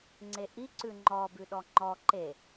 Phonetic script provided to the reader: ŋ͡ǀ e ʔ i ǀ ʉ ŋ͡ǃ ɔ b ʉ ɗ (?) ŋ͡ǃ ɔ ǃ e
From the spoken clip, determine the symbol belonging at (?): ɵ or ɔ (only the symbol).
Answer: ɔ